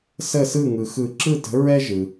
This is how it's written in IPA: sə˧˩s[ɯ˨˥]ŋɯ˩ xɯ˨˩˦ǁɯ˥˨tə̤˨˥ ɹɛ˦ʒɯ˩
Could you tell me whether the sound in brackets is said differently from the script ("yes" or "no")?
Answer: yes